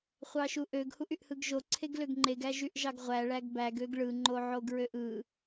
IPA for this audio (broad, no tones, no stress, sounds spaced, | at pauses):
χʷ ɑ ʃ u ʔ ø ɡ h u ʔ y ʔ h ɯ ɡ ʒ o ǀʰ e ɡ l ø ɡ ŋ͡ǃ e ɡ æ ʒ y ʔ ʒ ɑ ɡ ʁʷ æ ɭ æ ɡ b æ ɡ ø ɡ ɭ ɯ ŋ͡ǃ o ʕ o ɡ ɹ ø ʔ ɯ